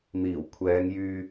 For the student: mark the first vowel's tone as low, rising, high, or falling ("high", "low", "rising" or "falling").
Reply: low